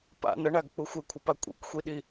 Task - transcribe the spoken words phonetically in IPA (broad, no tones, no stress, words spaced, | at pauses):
pa̰ nɐɳaɡk͡pu xʷekʷʰɐpa kʷʼḭkʷxʷiɗi